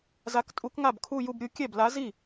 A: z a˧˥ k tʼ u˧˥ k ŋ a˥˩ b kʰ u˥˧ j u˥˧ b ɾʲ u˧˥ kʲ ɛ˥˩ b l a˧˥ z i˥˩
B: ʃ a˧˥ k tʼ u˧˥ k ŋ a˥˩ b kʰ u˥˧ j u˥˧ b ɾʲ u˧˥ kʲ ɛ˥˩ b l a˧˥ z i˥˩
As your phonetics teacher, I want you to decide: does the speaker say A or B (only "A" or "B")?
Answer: A